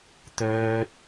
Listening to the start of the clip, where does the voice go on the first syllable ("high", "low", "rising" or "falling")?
high